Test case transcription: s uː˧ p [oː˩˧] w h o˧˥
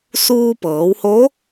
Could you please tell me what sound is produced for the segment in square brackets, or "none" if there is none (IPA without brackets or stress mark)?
ɤː˩˧